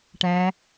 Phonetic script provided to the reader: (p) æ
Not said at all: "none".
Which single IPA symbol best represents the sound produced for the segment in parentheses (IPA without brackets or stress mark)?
ʈ